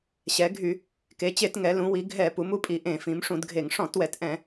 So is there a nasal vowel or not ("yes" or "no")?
yes